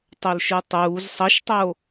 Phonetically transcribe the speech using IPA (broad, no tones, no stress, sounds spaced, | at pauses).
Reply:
tˤ o l ʃ ɯ tˤ uː z sˤ ʌ ʃ tˤ o